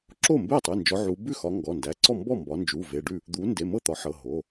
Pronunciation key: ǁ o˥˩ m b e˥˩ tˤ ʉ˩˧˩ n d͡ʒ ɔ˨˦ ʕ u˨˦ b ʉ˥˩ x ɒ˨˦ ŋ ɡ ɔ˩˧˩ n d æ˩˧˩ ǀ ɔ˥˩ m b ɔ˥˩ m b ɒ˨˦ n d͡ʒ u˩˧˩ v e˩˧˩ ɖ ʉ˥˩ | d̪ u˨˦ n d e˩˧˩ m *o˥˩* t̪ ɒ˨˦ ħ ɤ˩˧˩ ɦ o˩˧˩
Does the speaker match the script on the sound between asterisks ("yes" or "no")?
no